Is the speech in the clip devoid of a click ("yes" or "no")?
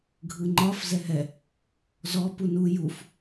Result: no